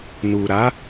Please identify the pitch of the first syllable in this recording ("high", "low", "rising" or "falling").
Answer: low